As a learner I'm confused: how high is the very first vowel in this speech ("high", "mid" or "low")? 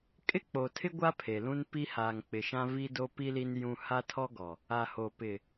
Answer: high